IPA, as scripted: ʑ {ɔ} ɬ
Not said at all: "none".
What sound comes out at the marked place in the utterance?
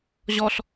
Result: ɔ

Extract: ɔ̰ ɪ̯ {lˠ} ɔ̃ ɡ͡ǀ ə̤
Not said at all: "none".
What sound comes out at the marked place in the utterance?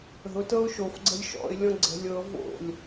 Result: lʲ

